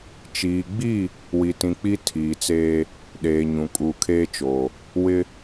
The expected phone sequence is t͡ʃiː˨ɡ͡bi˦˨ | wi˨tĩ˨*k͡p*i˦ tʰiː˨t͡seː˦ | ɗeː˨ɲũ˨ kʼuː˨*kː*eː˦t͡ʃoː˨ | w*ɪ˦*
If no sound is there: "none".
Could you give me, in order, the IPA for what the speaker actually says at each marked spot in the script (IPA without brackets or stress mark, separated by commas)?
k͡p, kʰ, ɪ˦